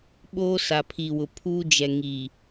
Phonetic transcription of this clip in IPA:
ɓ oː˦ s a˨ pʰ i˨ w ʊ˨ pʰ uː˦ d͡ʒ ɛ˨ ŋ i˨

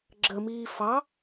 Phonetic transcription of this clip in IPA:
ɡ͡ǁ ə m iː f ɑ

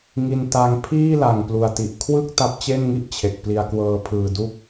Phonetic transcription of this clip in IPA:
ŋ i˧ n t a˦˥ ŋ pʰ iː˥˩ l a˨˩ ŋ p l u˨˩ a̯ t i˨˩ ʔ kʰ w ɯ˥˩ k̚ t a˦˥ p̚ t͡ɕ e˥˩ n ŋ i˥˩ ʔ t͡ɕʰ e˨˩ k̚ p l i˧ a̯ k w ɤː˦˥ pʰ ɯː˧ d u˦˥ k̚

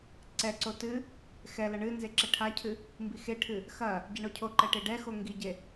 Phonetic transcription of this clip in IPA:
ǀ ɛ ǀ o t ɨ | x ɛ l ɐ ɳ ɨ n z e ǁ ɛ ʈʰ a cʰ ɨ | m b i x e ʈʰ ɨ | x ɐ | ɟ ɛ ɳ o cʰ o ǃ ɛ ʈ e ɖ ɛ x o ŋ ɡ i ɟ e

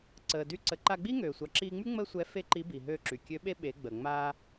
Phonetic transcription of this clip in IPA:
ǀ əː˩ d y˧˥ ǀ ə˩˧ ǃ a˧ ɡ͡b i˥ ŋ øː˩ sʷ a˩ ǁ iː˧ ŋ͡m y˥ ŋ͡m əː˥ sʷ ɛ˧˥ f e˥ ǃ i˧˥ b i˩ ɦ øː˧ ǁ y˩ kʲ ø˧˥ ɓ e˥ ɓ e˩˧ ɡ͡b əː˩ ŋ͡m aː˧

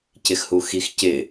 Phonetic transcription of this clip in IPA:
c ɪ x h u x i x c ɪ

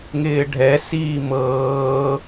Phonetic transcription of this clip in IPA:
ŋ ɪː ɖʱ ɛ s iː m ɤː

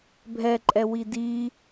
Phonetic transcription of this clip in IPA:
bʱ ɛ ǃʼ ɛ w i d i

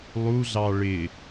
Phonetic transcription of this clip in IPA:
lˠ u ɮ ɑ ɭ ɪ

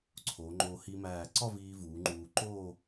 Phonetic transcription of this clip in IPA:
ǀʰ o˩˧ ŋ͡ǃ o˧ h i˧ m æː˧˩ ǀ ɒ˥˧ v iː˧ v uː˩˧ ŋ͡ǃ uː˧ ǃ o˥˧

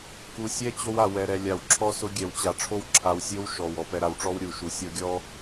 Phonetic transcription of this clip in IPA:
k u˨ sʲ ɛ˦ t͡ɕ o˦ w a˨ w ɛ˨ ɾ ɛ˨ lʲ a˨ w ǁʰ ɔ˦ s ʊ˦ ɡʲ ɛ˨ w t͡ɕ a˨ ʈ͡ʂʰ o˦ w ǁʰ a˨ w sʲ o˦ w ʃ ɔ˨ w ɔ˨ p ɛ˨ ɾ a˨ w ʈ͡ʂ ɔ˦ w ɾʲ u˨˦ ʃ u˨ sʲ ɔ˦ ɡʲ ɔ˦

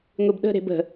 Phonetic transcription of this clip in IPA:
ŋʷ i b ɗ ə̤ ɾ e̤ b ə̤

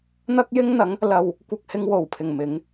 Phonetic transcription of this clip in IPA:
n̪ ɐ˥ k̚ j ɪ˥ ŋ n̪ ɐ˨˥ ŋ | l ɐ˧ w | kʷ ɐ˧ k̚ h ɪ˧ ŋ w o˨˩ w pʰ ɪ˨˩ ŋ m ɪ˨˥ ŋ

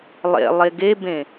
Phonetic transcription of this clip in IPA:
lˠ ḛ lˠ e ɡ e b ẽ

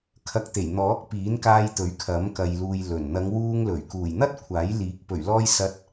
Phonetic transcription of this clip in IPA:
kʰ ɐ˨˥ k̚ t̪ e˨˩ j n̪ ɔː˨˥ k̚ p iː˨˥ n k aː˧ j t̪ ɵ˨˥ ɥ kʰ ɐ˨˥ m k ɐ˨ j l uː˨ j l ɵ˨˩ n n̪ ɐ˨˧ ŋ w uː˧ ŋ l ɵ˨˩ ɥ k uː˨˩ j n̪ ɐ˥ t̚ kʷʰ aː˨˥ j l iː˨˥ k̚ p ɵ˨˩ ɥ l ɔː˧ j s ɐ˧ t̚

